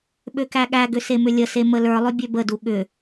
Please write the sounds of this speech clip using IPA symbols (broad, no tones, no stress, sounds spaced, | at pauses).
ɓ ø k æ ɠ æ ɡ ʏ s e m ʏ lʲ ə s e m ə l ə˞ lˠ ʏ bʲ ø b ə d u ɠ ʏ